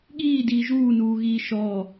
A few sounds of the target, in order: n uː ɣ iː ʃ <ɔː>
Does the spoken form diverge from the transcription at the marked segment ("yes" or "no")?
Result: no